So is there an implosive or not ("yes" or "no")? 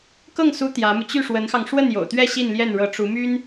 no